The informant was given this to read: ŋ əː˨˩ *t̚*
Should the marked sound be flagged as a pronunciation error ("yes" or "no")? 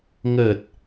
no